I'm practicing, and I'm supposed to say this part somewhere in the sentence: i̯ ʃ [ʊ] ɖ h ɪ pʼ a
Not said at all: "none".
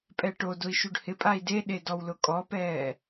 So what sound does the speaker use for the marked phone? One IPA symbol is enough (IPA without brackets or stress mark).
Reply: u